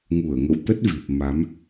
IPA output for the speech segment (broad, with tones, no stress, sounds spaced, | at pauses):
ŋ u˧˩ ə̯ ŋ ə̰˧˨ w t̪ ə˦˥ t̚ v i˨˩ p̚ m a˨˦ m